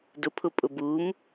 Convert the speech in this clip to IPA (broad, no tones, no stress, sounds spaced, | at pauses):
d ʊ pʰ ʊ pʼ ʊ b u m